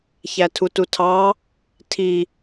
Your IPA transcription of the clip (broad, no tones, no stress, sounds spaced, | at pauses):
ç æ tʰ u t u tʰ ɑ | tʰ i